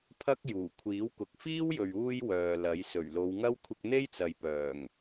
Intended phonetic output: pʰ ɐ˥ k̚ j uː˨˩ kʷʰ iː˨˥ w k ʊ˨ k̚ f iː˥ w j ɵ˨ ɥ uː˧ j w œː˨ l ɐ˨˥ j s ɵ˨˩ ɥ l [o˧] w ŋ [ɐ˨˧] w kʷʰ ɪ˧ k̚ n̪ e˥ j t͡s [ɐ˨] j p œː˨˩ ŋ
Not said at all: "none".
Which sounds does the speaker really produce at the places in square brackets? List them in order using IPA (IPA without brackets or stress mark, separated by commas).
o˨˧, ɐ˥, ɐ˨